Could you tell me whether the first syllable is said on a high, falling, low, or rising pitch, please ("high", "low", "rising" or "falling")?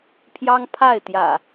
high